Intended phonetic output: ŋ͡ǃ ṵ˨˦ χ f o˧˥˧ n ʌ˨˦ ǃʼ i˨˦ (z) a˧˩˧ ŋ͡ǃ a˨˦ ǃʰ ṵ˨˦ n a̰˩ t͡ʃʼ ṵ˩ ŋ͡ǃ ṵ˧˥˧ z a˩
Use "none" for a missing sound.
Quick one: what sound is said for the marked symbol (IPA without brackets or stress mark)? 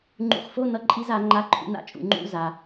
z